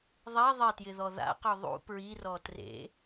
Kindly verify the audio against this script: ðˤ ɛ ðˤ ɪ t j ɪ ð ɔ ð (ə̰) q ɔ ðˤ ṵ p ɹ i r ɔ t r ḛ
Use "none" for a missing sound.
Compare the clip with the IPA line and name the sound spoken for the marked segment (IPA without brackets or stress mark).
a̰